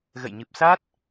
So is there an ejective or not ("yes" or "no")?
no